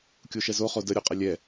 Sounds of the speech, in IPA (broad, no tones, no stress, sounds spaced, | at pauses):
kʲ o ʃ ɛ z o χ o d ə ɾʲ o qʼ ə lʲ ɛ